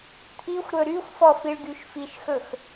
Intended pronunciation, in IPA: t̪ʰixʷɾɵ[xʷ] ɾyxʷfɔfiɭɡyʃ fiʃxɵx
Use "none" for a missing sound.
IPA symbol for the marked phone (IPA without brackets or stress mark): none